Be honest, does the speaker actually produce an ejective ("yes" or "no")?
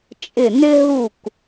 yes